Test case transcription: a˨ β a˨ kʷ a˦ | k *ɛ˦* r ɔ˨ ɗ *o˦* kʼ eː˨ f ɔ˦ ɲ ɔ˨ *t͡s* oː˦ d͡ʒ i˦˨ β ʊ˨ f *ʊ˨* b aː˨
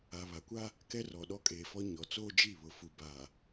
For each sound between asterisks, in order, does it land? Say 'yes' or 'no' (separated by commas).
yes, no, yes, no